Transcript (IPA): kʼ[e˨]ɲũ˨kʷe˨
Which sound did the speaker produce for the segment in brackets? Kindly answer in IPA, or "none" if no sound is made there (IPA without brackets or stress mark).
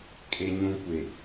e˨